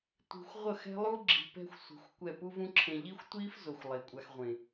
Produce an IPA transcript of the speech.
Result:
tʷi̤˧xʷ ʁʷʌ˦˨xɛ̤˦lˠu˦ ɡ͡ǁi̤˧pɛ̤˦xʷsʷi̤˨˦xʷkʷɛ˦˨ pu˦vũ˦ǁʰẽ˧ ʎi˦xʷtʷiː˦fzo˨xʷ lˠe˨kʷʼa˧xʁʷẽ˨

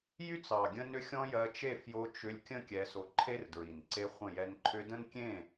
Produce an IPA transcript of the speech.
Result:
jy˦t͡sɑ˨ ɡʲə̃˦nʏ˦ xʲɔ̃˦jɜ˧t͡ʃe˦˨ fjo˧ t͡ʃʏ˧lʲkʲə̃˦ kʲɛ˧so˧ ǃʰe˦rdɹi˨n ǀe˧χʷə̃˦˨jɛ˧n ǃʰʏ˧də̃˦nkʲẽ˦˨

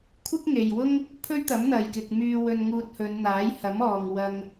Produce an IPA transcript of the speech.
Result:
kʷʰɪ˥k̚ŋe˨jwʊ˥ŋ | pʰɵ˥ɥt̪ɐ˨˥mn̪ɐ˨jkɪ˨k̚ myː˧ wɵ˧nŋuː˧t̚hɵ˨˧n n̪aː˨˥jhɐ˨˥m ɔː˨ŋwɐ˧ŋ

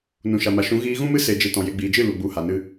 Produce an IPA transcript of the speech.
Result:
nũ˨ʃa˨ma˨ʃũ˨˦ ɣiː˧ɣũ˦mɨ˦ se˧d͡ʒe˧tɔ̃˨ je˨ɡ͡biː˨d͡ʒɨ˦˨ lu˨ ɡ͡bu˨˦ha˨nɨ˧

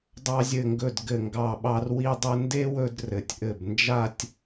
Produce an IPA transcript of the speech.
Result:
dˤɑ˧zʲɘ˧˩ŋɡɵ˧˩d ɡɘ˧˩ŋɡɑ˧˩ɓɑ˧r wi˧dˤɘ˧nde˥wɵ˧d rɘ˩˧tʲʔɘ˧˩b nd͡ʒa˥˧tʲ

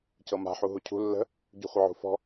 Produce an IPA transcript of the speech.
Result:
cɤma̤ ħuɦucʰṳ lːə̤ | ɟṳχʷəʕṳfɔ̤

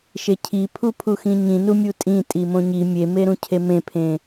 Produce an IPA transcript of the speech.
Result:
ʃecʰi pʰupʰuxĩɲĩ numʲutʼĩ tʼimõɲi mʲemeɾũcʰe mẽpʰẽ

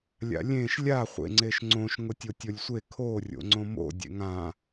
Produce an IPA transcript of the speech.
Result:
lʲa̰lʲẽʃ lʲa χʷḛŋ͡ǀeʃŋ͡ǀõʃ ŋʊtʲotʲolʲsʷe kʰo rʲo̰ŋ͡ǀõmo̰ dʲḛŋã

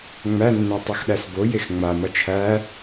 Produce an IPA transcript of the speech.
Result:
ŋ͡mænːæ tˤuxɗæsbo jexŋ͡ma mʌt͡ʃʰæ

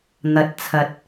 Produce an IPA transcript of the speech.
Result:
n̪ɐ˨t̚t͡sʰɐ˨t̚

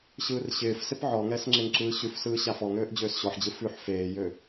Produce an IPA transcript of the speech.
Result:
ɕɯːrɕɪːfsɪp ʕɔŋɛs ŋ͡ǁeŋǁɯːɕʉfsɯː ɕafɔŋøːʔ d͡ʑøːsɕɔħd͡ʑɯ fʉħ feːjø

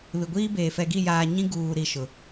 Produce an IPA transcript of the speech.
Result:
βɪ˨ɡʷiː˦beː˨ fɛ˨ɡi˦˨jaː˨ ɲĩ˦ ɡuː˨ ɾi˦˨ʃʊ˨

